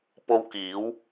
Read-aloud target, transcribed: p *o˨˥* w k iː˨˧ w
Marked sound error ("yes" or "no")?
yes